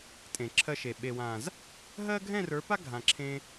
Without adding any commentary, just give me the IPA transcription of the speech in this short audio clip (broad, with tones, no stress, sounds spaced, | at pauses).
tʼ ẽ˨ ǁʰ ɜ˧ ʃ e˨ ɓ e˨ w ã˨ z | ɦ ɜ˦ ɡʱ ɛ̃˦˨ r ə˞˨˦ p a˦ ɡʱ ã˨ ǁʰ ẽ˧